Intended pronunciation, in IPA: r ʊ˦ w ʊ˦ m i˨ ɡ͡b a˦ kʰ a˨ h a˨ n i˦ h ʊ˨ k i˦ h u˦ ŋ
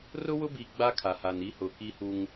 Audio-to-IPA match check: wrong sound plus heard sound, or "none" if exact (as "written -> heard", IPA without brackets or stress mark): m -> b